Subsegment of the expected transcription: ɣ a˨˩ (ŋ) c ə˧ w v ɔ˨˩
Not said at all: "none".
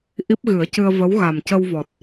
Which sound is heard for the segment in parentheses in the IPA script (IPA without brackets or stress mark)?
m